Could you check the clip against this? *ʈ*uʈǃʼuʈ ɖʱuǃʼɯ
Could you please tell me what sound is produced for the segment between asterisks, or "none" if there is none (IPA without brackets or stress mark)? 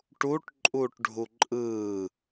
ʈ